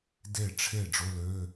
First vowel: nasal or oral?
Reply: oral